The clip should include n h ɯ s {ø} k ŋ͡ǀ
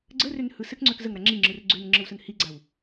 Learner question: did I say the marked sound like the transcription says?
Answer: no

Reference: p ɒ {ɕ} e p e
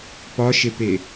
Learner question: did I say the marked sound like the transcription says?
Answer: no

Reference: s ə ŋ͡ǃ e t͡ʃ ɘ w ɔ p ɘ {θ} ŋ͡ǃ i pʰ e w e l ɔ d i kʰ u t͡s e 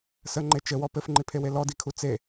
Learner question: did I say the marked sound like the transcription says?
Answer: no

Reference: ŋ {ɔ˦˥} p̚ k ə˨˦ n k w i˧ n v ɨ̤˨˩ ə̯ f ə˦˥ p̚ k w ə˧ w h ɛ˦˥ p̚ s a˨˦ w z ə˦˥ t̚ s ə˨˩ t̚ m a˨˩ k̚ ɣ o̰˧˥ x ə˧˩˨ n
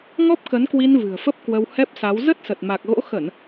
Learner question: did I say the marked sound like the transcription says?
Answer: yes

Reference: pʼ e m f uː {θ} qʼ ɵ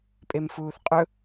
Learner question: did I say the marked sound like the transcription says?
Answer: yes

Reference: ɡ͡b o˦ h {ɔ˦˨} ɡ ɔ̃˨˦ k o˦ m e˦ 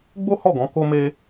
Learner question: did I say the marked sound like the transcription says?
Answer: yes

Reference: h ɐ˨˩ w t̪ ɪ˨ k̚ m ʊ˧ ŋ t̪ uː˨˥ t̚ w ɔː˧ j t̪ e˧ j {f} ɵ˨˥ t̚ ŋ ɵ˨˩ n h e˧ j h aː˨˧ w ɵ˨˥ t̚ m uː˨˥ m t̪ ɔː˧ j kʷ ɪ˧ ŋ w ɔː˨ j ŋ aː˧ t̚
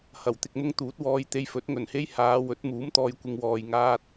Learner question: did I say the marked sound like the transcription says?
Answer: yes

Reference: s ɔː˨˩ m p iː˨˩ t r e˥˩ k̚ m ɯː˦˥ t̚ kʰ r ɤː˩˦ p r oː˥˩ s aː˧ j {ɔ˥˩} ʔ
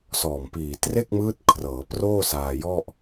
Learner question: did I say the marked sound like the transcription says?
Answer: yes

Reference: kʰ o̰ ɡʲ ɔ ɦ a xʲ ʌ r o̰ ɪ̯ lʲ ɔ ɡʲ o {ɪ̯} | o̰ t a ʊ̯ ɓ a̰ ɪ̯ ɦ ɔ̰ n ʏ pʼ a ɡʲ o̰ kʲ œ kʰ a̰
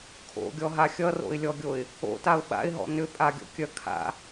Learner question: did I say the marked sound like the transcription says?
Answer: yes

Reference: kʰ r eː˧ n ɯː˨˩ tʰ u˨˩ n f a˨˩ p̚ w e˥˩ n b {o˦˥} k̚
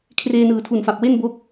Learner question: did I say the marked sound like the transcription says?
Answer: yes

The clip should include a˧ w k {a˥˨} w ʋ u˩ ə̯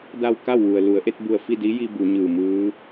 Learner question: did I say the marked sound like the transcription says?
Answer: yes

